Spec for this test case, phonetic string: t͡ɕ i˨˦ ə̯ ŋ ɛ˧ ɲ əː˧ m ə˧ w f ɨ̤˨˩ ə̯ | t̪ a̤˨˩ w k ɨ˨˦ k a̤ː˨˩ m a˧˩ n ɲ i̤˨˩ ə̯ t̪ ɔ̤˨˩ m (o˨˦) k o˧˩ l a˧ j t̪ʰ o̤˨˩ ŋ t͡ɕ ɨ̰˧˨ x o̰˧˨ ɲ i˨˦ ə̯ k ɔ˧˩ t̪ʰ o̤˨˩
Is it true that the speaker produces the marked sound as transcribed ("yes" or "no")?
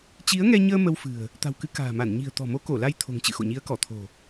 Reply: yes